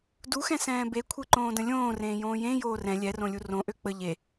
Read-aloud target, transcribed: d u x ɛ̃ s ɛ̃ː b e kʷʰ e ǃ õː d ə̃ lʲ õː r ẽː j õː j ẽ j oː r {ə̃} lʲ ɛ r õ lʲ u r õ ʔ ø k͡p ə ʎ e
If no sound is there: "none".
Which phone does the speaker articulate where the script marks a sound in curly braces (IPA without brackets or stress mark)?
ɛ̃